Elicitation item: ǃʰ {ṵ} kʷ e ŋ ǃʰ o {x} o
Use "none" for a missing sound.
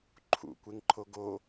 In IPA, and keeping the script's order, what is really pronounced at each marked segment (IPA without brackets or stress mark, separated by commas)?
ṵ, ɡ